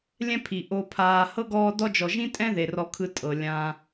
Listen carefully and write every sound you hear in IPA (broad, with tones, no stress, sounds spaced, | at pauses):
lʲ ɛ̃˦ pʰ i˩ ʔ o˨ pʰ aː˨ h ɤ˥ ɡ ɔː˦ d ɔ˦ d͡ʒ ɔ˨ ʒ ĩ˥ tʼ ɛ̃˥ ð e˩ r ɔ˨ kʰ ɯ˨ tʼ ɤ˩ lʲ ã˨